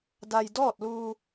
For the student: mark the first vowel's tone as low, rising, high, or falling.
low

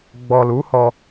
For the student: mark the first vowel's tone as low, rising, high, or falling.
low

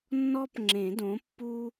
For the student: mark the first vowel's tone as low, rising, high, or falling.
high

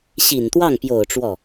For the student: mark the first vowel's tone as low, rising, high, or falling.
low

